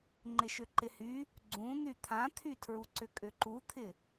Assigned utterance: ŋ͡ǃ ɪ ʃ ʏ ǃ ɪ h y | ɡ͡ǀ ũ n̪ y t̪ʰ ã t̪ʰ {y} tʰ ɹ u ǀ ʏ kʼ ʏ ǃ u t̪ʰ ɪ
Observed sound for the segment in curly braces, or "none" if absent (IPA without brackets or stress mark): y